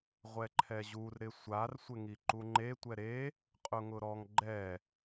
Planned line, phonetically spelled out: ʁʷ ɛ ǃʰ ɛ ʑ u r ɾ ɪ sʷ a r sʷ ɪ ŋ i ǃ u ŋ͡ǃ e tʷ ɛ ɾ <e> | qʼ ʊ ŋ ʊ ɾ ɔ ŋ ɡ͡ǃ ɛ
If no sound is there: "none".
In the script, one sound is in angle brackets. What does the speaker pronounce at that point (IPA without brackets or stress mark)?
e